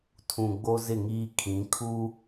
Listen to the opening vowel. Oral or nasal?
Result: nasal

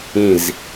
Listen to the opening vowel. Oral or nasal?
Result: nasal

